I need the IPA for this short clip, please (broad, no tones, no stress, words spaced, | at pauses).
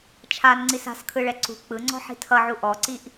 t͡ʃʰanŋ͡ǀis a̤skʰɯɭɛ ǀṳ k͡pɯŋ͡ǀɔ̤ ħi̤tʰʌʕu ʔɔǀiʔ